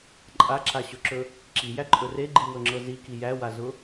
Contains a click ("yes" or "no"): yes